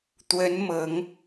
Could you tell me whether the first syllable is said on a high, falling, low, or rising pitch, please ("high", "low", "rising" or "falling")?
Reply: rising